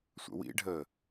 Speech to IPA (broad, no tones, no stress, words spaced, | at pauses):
sʷə̰wḭɖʱəː